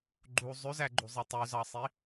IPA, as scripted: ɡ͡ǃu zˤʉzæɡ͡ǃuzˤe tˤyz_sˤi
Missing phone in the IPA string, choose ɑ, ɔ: ɑ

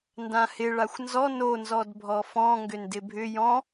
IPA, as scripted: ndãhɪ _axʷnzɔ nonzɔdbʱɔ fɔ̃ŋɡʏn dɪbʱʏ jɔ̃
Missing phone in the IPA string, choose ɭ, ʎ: ɭ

